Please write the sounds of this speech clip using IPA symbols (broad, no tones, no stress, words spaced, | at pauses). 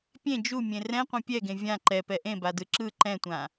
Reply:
pʲẽ d͡ʒumʲẽ rɛ̃qʷɛ̃ pʲɛɡẽ vʲã ǃɛpɛ ʔẽbadɯ ǁɯ ǃɛ̃tʷã